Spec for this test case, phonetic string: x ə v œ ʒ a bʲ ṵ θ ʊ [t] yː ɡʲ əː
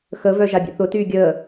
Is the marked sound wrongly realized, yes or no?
no